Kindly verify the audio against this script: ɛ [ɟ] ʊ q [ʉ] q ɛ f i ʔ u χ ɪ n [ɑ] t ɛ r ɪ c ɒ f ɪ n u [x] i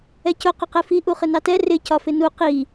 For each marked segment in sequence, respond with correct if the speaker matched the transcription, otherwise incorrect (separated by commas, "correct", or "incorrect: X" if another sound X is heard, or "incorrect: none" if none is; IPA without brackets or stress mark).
incorrect: c, incorrect: ʊ, correct, incorrect: q